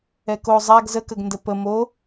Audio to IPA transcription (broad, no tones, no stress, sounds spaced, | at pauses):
ɛ k o zˤ a ɡ z ə k ə ɡ n d ə p ə m o